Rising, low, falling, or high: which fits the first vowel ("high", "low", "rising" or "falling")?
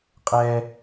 high